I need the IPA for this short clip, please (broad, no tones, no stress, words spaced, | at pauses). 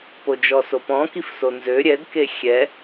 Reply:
pod͡ʒɔsopɔ̃ kifsonzø ɾʲɛd kexʲɛ